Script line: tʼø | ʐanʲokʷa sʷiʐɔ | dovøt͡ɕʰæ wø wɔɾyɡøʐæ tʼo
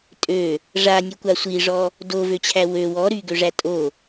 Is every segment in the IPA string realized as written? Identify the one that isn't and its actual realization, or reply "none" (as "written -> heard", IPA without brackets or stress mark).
none